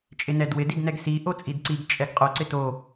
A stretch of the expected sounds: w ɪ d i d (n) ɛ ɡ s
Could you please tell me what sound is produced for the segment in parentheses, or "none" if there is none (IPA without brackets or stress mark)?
n